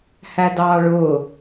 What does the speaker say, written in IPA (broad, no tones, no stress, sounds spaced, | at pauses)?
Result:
h æ d ɑː ɭ ʊː